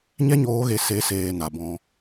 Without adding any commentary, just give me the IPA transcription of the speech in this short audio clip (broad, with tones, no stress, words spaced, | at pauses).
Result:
ɲɛ˦ɲoː˨˦ɣe˨ se˨˦seː˨ na˨bɔ̃˧